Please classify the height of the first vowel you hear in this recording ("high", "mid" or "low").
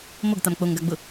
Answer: mid